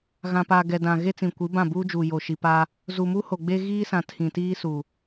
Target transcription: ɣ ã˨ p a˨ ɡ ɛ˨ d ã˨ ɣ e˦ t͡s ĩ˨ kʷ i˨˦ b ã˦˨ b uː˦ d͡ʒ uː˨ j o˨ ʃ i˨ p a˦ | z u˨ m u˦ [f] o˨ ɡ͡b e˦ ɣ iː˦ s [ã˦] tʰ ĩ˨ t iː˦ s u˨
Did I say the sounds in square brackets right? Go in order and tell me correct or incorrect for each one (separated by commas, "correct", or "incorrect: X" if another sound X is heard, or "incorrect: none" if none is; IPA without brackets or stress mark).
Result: incorrect: h, incorrect: ã˨